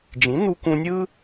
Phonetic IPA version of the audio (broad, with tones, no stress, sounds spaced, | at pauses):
d͡ʒ ĩ˩˥ n̪ u˧ k ũ˧ nʲ ɯ˥